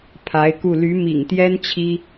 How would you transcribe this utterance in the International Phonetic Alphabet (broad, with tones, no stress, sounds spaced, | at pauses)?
pʰ a˧˥ ɪ̯ k u˥˩ l y˧˥ m ḭ˨˩ ŋ t̪ j ɛ˥ n t͡ɕʰ i˥